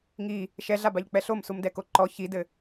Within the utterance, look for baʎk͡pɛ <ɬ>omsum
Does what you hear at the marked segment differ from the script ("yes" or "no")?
no